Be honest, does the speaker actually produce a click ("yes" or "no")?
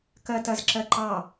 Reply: yes